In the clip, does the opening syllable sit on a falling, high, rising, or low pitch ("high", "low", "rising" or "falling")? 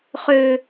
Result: low